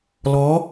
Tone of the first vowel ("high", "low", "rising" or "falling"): rising